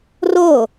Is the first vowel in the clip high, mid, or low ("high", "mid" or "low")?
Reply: mid